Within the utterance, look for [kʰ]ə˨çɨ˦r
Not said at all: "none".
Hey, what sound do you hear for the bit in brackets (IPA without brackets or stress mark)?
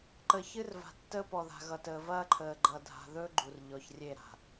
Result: ǃ